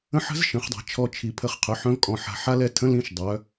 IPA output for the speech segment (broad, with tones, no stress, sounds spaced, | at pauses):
ə̃˦˥ ħ ə̤˦˥ z ʃ ə̃˨˩˦ χ dˤ a̤˨˩˦ t͡ʃʰ ɔ˧ t͡ʃʰ i˨˩˦ pʰ ə˧ χ qʰ œ˩˧˩ ħ œ̃˦˥ v kʼ ɔ̃˧ ħ a̤˧ ħ a˦˥ l ɛ˥˩ tʰ ə̃˦˥ l ĩ˦˥ ʃ dˤ œ˨˥